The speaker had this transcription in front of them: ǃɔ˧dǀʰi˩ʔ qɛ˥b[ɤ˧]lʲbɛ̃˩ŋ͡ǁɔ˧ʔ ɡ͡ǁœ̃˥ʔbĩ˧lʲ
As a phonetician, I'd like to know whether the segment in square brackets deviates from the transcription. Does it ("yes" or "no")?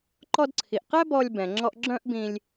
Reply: yes